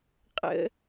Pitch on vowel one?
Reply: high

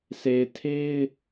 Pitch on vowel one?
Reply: low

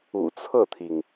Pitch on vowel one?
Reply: low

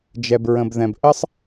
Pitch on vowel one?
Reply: low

